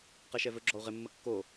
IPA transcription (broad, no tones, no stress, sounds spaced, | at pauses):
q ɛ ʃ ɛ v ɵ ɡ͡ǁ ɔ u̯ ʁ ɪ mː ə kː o